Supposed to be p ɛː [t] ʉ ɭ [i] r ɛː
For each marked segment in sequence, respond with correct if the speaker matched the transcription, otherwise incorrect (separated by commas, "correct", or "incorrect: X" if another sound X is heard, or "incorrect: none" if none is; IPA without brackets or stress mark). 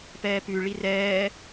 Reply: incorrect: p, correct